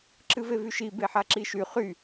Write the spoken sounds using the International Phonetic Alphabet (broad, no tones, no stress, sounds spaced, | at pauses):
ǁ ɨ v e v y ʃ i b e ħ a ǁ i ʃ y χ y